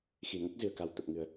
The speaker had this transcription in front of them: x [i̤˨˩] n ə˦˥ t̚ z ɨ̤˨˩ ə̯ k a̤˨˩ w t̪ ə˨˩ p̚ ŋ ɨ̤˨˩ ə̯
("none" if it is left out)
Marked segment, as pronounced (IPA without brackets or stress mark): i̤˨˩